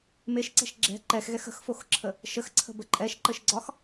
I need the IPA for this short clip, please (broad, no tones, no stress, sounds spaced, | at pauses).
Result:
m e ʃ ǀ ɛ̤ ʃ ɡ͡ǁ ɛ̤ ǃ ɛ x ɣ ɛ x ə̤ x f o x ǁʰ ə | ʃ ə x ǀʰ ə̤ b ə ǃʼ ɛ ʃ ǃ ə ʃ ɡ͡ǀ ɒ x